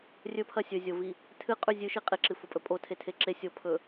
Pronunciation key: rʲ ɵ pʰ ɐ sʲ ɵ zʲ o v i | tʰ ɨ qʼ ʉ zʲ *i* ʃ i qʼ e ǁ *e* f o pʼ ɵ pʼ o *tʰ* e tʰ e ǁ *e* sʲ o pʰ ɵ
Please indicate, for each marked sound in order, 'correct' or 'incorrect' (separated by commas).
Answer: incorrect, incorrect, correct, correct